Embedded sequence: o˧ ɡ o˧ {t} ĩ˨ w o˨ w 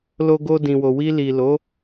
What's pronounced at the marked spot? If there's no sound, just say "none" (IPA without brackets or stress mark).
d